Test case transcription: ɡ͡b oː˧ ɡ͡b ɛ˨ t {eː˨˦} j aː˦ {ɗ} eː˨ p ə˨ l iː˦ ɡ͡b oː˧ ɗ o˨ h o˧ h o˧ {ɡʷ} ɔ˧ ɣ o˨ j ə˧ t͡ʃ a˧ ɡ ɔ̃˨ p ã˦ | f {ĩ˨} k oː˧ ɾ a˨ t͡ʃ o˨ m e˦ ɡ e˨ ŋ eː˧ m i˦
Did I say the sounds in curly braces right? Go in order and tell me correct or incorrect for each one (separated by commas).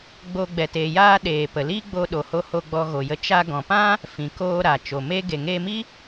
incorrect, correct, incorrect, correct